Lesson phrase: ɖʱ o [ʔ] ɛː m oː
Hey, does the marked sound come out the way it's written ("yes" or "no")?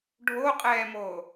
no